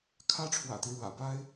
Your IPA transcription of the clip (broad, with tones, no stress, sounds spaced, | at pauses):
kʰ ä˥ ʈ͡ʂʰ w ä̰˨˩ t̪ i˦ ɻ w ä̰˨˩ p a˥ ɪ̯